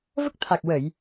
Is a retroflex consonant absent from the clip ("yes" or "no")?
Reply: yes